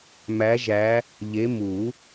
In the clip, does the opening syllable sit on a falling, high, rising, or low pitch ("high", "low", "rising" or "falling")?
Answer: rising